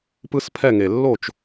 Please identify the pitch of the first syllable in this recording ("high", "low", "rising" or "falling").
high